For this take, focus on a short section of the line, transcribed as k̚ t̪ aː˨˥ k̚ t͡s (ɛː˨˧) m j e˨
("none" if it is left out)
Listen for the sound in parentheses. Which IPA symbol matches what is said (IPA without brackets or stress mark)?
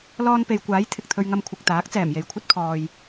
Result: ɛː˨˩